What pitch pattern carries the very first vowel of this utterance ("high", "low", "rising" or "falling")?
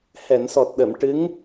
low